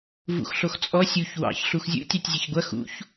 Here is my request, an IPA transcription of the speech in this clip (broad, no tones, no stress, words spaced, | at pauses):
vṵxɬoxt͡sʼɔ sʲuç wɑ̰ç ɬuxzʲṵ tʲɑtʲzʲeçɡʷɐ xṵç